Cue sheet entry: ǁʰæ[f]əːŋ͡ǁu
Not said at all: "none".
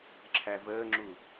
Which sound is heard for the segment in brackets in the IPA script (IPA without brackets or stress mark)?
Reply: v